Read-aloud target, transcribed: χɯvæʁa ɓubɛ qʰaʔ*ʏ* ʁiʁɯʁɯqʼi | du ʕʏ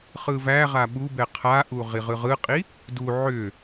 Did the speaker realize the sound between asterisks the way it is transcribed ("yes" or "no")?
no